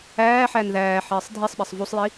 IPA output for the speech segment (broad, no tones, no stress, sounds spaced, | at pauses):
æː ħ æ n ð æː ħ iː sˤ dʱ i sˤ ɓ i sˤ v u sˤ j i